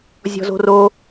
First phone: zʲ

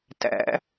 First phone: t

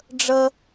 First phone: ɖ͡ʐ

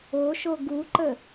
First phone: o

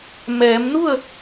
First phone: m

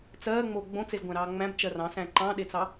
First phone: t͡s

